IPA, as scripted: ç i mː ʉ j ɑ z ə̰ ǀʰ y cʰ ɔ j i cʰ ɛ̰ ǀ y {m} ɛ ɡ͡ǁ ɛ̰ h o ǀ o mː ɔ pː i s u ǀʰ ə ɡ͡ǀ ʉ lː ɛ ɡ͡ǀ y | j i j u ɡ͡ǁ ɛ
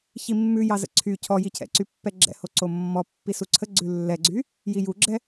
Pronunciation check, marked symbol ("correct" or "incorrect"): incorrect